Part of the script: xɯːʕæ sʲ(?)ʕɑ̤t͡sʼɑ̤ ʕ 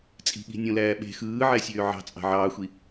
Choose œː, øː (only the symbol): øː